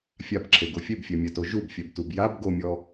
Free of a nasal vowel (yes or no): yes